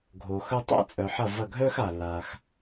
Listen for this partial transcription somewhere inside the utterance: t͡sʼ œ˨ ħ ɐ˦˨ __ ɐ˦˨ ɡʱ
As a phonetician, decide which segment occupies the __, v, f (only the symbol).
v